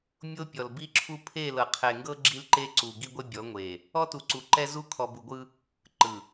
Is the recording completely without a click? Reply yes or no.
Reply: no